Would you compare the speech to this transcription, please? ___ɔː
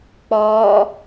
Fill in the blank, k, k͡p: k͡p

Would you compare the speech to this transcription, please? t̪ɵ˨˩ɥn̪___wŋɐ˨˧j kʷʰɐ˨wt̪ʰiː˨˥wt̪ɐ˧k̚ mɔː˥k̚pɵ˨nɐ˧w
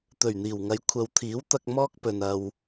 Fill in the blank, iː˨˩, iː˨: iː˨˩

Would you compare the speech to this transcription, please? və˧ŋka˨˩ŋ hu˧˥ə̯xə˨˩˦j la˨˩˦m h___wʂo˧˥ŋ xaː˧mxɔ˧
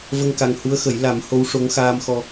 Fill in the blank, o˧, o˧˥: o˧˥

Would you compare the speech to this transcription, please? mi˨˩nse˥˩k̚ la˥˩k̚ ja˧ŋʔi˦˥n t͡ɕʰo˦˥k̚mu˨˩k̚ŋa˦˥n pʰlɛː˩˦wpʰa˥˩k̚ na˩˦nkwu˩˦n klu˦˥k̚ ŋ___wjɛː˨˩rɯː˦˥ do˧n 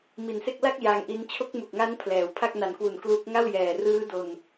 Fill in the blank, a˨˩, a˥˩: a˥˩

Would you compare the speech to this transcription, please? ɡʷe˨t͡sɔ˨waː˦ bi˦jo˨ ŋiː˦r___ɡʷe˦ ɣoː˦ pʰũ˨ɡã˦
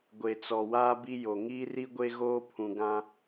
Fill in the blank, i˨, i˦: i˦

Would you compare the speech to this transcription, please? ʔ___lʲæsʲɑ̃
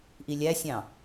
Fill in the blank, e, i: i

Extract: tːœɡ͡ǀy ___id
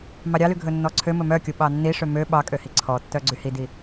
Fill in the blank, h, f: h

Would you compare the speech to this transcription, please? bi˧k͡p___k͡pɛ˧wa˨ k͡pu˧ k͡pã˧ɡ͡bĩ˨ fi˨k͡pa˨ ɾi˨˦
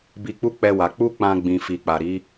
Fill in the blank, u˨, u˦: u˦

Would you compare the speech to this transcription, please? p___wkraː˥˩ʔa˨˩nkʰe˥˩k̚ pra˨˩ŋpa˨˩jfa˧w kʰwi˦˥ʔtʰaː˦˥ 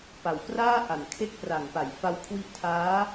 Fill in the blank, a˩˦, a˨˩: a˨˩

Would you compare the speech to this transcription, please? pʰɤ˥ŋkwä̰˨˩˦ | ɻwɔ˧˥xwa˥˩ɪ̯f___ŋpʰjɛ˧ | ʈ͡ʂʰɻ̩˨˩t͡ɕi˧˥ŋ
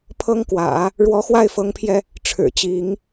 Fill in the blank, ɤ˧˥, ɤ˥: ɤ˧˥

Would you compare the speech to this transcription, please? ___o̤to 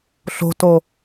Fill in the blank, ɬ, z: ɬ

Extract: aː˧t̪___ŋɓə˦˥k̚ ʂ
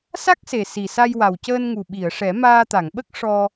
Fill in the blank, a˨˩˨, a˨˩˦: a˨˩˨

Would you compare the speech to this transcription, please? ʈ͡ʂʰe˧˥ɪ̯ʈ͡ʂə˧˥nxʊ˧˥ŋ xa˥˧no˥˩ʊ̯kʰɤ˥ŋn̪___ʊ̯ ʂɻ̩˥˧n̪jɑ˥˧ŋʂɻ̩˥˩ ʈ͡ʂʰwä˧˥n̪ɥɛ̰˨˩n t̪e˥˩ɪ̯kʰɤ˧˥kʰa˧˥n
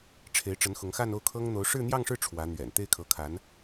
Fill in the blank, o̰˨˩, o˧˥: o˧˥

